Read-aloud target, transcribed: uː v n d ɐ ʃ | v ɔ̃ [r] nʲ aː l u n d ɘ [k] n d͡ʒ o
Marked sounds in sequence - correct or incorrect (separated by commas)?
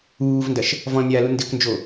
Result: incorrect, correct